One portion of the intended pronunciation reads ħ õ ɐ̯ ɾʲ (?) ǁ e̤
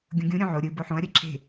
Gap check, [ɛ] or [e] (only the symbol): ɛ